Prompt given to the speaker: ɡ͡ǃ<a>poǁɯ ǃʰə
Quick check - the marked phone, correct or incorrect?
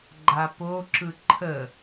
correct